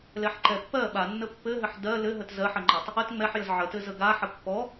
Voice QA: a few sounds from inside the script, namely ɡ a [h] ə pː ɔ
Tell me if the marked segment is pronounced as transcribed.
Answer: no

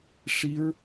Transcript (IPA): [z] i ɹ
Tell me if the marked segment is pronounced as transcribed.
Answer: no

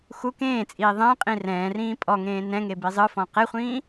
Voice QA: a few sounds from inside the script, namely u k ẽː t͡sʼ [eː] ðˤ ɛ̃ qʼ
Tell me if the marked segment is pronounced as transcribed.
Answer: no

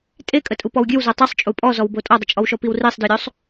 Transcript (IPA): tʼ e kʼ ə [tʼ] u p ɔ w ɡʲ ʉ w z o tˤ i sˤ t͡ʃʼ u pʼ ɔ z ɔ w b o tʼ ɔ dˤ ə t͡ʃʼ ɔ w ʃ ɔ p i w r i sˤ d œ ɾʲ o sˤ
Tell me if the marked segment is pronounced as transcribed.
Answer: yes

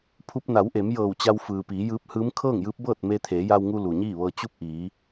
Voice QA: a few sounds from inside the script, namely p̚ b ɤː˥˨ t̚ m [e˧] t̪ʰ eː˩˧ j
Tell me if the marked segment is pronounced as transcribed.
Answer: yes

